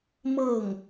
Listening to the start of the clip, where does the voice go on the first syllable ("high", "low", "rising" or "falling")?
falling